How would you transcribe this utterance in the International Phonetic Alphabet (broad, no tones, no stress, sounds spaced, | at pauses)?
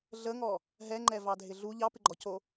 ɮ ə ŋ ɔ | ɦ ɛ ŋ͡ǃ ɛ v ɑ dʱ ɪ ɮ u ʎ ɑ p ɪ ɡ͡ǃ ɔ c o